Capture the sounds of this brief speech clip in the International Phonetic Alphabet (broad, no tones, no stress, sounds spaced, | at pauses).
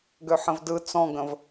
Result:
ɡ ø ħ ə̃ v d ɯ t͡s ɔ̃ ɡ ə̃ v